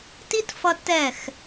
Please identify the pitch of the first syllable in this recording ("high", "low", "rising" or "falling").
high